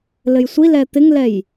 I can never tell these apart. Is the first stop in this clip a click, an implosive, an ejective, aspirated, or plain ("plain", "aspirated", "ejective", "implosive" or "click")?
plain